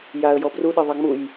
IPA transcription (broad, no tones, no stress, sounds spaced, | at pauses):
j a ə̯ j ɔ b r u ɗ e ðˤ ɑ ŋ͡m u j